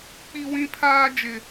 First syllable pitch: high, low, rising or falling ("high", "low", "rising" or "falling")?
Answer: high